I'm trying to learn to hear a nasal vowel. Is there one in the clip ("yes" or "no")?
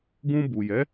yes